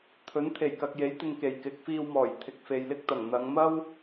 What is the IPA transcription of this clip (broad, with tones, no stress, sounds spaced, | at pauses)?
t̪ʰ ɵ˨˥ n t̪ʰ e˨˩ j k ɐ˨ k̚ j e˨˥ j t̪ ɪ˨ ŋ k e˨˩ j k ɪ˨˥ k̚ f iː˧ w m ɔː˨˩ j t̪ʰ ɪ˨ k̚ f e˨ j l ɪ˥ k̚ t̪ ɐ˨˩ ŋ n̪ ɐ˨˧ ŋ m ɐ˥ w